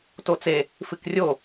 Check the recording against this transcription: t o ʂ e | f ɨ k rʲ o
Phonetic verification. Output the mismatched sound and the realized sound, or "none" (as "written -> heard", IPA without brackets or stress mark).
ʂ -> t͡s